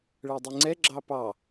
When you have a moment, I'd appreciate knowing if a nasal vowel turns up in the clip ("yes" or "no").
no